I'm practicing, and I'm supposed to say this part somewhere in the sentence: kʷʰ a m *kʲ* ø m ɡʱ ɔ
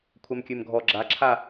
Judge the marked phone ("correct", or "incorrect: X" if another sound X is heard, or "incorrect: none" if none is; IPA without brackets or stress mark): correct